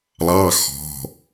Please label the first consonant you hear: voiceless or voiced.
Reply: voiced